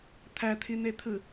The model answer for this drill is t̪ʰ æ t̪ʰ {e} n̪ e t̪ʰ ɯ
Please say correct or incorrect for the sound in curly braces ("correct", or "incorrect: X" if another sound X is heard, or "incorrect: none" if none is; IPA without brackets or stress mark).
incorrect: i